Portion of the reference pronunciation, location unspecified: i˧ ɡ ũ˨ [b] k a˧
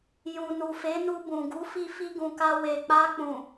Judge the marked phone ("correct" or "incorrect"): incorrect